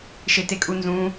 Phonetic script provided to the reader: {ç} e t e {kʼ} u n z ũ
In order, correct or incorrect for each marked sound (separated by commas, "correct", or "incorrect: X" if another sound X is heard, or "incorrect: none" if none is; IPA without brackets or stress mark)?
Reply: incorrect: ʃ, correct